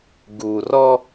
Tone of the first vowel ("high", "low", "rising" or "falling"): low